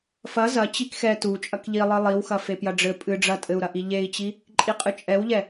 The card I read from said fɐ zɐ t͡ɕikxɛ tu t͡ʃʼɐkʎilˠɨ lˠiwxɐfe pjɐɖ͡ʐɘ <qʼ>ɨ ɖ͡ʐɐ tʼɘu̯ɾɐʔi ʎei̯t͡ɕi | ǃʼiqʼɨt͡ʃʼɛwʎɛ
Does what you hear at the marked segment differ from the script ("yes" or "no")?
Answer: yes